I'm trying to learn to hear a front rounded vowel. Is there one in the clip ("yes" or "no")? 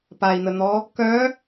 yes